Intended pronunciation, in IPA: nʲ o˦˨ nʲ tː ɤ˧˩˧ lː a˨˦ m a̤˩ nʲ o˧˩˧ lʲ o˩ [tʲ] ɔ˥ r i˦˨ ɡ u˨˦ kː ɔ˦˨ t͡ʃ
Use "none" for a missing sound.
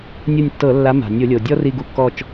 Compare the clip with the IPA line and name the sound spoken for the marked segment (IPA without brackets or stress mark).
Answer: dʲ